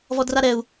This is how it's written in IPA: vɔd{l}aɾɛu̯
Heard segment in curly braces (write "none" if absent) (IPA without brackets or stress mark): r